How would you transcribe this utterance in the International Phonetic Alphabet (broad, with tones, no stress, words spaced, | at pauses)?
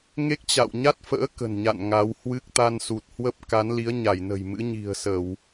ŋe˦˥k̚t͡ɕa̰˧˨wɲa˦˥t̚fə̰ː˧˥ kə̤˨˩nɲa̰˧˨n ŋa˨˦whwɨ˦˥k̚ t̪a˧nsu˨˩t̚hwə˦˥p̚ ka˨˦nli˨˦ə̯ɲa˧˩jnə̤˨˩j mɨ̰˧˥ɲi̤˨˩ə̯sə˧˩˨w